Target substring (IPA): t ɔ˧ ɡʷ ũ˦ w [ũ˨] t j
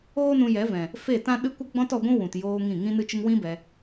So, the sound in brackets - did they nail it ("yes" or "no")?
yes